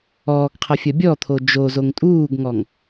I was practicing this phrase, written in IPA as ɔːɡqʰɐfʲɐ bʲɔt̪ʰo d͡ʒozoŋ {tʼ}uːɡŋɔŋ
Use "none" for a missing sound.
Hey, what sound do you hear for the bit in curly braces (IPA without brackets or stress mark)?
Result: tʼ